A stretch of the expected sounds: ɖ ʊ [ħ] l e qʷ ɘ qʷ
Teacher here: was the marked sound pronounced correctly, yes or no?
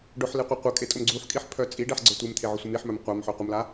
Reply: yes